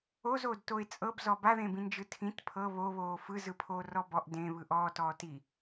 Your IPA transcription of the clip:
ozoːd toɪ̯t͡sʼɤbzɔ baðẽbĩnd͡ʒɯ tʰĩt pʰɤ βoβoː fɯzɯpʰoː rɔbɔʔ dẽ βɯʔɔːtɔː ti

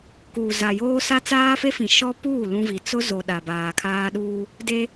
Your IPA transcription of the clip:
kuː˨za˨joː˦ sa˦t͡saː˦fe˦fĩ˨ ʃɔ˦puː˦˨ lũ˦vi˨ t͡sʊ˦zo˨ ɗa˨baː˨kʰaː˦ ɗuː˦ | de˦

